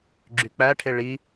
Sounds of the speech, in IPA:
ɡ͡ǁ y k͡p æ ʈʰ e ɭ i

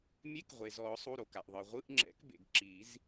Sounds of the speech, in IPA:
mʲ e˧˥˧ k ʁʷ e˩ z ɔ˨˩˦ ʊ̯ sˤ u˩˧˩ ɾ o˩ k a˩ ʔ ðˤ ɯ˩ ʁʷ ɯ˧˥˧ ʔ ŋ͡ǁ ɛ̰˨˩˦ k b ḛ˩ ɡ ǁ i˨˩˦ z

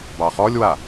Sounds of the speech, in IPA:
b ɑ χ ɔ lʲ w a

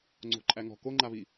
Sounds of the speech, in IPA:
ŋ͡ǀ o̤ ǃʼ æ ŋ ɔ̤ k o ŋ͡ǃ a β i

